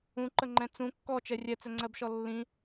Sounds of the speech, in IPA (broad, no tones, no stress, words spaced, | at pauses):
ũǃəŋ͡ǃɛ̃ t͡sũ kːɔt͡ʃɛ rʲɛt͡sɛŋ͡ǀɜbʃɔ lːĩ